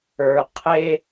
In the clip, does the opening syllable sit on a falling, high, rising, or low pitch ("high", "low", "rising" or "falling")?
low